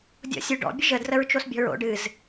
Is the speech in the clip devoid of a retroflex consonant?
no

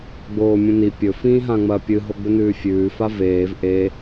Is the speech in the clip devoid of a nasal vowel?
no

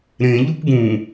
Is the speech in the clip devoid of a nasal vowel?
no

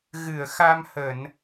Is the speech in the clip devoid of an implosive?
yes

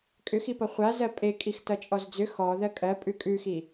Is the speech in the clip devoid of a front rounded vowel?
no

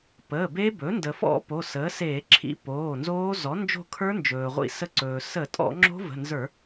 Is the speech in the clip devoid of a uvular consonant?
no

